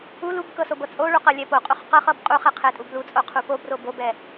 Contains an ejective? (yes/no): yes